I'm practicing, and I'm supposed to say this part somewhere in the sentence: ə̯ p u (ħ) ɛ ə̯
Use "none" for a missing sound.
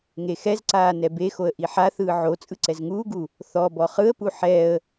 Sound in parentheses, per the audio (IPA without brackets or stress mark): ħ